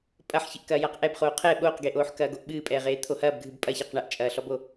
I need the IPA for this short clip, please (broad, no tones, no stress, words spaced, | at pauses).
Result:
pʼɐħçɨʔkɐː jaqʔɛbχoː qʰɛ ɓoːqɡeʔoːħkɐː ɡoʔɓɨːpʼɛːʁeː t̪ʰohɐːb ɡʱɨbpʼɐçaq ɳɐʔt͡ʃʼɐːɬɔbo